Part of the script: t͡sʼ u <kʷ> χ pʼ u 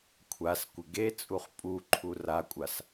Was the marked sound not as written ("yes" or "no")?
yes